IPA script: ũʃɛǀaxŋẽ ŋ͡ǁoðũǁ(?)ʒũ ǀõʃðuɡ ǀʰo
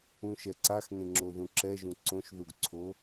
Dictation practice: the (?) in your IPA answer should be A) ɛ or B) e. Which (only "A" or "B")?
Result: A